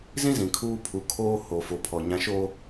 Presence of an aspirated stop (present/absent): present